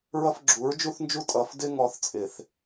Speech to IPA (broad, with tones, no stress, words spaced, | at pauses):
ɹʌ˦fɡ͡ǁu˨˦ɹd͡ʒu˦θnd͡ʒu˦ tʼʌ˨fdɪ˦ ŋɔ˦θt͡sʼɪ˨θ